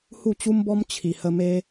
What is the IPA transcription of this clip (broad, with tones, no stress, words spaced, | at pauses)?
hu˥˧t͡ɕu˦mbɔ˦m t͡ɕʰi˨˩hə˧me˦